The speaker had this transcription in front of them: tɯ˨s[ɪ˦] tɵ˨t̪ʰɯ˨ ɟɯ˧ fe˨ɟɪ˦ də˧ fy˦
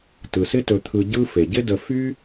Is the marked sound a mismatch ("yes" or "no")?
no